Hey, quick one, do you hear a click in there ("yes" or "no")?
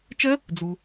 no